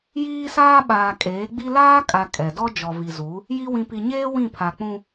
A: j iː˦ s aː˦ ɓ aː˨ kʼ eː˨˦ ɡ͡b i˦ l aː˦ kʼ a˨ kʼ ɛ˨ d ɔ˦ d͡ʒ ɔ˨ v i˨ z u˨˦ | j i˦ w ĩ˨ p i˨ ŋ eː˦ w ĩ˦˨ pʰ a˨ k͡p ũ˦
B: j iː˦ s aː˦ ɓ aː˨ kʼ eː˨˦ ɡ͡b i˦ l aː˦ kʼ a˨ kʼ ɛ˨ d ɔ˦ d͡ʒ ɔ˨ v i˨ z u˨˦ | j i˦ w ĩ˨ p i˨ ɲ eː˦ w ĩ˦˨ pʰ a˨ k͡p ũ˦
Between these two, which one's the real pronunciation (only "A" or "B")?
B